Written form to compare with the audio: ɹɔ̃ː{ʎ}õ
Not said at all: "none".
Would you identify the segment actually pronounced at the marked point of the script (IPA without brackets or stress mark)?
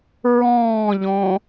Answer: ʎ